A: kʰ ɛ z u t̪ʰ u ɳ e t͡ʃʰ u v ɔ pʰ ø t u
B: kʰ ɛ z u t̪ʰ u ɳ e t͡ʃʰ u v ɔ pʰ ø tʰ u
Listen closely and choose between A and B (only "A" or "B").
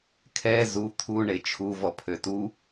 A